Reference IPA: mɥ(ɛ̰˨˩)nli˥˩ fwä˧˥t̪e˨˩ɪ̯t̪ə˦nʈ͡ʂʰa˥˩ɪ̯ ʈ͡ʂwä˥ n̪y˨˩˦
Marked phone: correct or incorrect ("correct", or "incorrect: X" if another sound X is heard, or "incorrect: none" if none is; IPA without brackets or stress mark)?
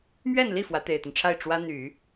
incorrect: ɛ˥˧